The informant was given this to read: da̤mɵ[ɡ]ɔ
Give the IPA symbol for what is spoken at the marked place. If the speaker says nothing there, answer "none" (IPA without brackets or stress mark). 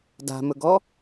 ɡ